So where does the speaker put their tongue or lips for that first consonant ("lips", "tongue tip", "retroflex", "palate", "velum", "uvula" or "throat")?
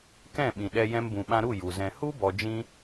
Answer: velum